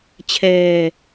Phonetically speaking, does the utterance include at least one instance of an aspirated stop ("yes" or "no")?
yes